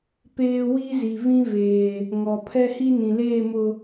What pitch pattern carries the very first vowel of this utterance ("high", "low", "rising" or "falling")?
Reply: high